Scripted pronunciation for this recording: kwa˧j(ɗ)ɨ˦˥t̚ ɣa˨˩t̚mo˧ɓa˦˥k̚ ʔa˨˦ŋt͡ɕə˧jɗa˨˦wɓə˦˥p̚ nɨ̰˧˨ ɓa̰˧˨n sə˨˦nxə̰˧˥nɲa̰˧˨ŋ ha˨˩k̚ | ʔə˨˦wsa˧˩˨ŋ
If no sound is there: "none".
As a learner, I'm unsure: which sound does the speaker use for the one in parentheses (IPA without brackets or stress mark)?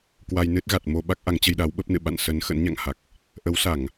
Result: n